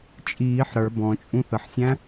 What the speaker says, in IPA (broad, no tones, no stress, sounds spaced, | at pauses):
t͡ʃʼ iː ħ ɾ ə˞ b ɔ̃ t͡ʃʼ ũ θ ə ħ sʲ æ̃